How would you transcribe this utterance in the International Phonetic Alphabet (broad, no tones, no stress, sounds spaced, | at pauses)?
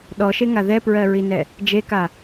ɗ ɔ ʃ e ŋ a ð ɛ p ɹ ɜ ɹ i n ɛ | d͡ʒ e k a